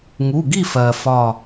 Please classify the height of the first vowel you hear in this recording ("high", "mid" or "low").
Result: high